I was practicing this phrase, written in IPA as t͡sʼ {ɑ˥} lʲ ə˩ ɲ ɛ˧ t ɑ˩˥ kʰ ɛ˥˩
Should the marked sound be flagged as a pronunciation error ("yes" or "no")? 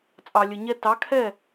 yes